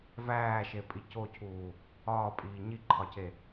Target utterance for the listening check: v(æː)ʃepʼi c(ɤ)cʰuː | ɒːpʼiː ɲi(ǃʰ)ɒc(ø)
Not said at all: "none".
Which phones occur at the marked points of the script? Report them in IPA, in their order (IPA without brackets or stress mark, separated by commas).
æː, o, ǃʰ, e